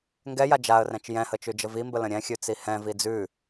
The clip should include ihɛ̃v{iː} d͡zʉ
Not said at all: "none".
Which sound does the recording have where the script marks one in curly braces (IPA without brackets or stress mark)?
i